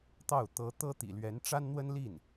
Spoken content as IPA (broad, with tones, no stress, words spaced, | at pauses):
t̪ɑ˥˩ʊ̯ t̪ɤ˧˥t̪ɤ˥t̪ḭ˨˩ lɥɛ˧˥nʈ͡ʂa˥nn̪wə˥nli˥˩n